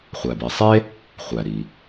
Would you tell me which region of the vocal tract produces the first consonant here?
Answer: uvula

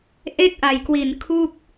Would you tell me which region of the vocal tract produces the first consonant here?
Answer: throat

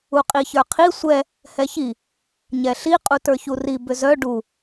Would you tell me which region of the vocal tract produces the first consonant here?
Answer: uvula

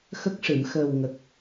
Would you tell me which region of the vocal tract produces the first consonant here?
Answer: velum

